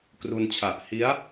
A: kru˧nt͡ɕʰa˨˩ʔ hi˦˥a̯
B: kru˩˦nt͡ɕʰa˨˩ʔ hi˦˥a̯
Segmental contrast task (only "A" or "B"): A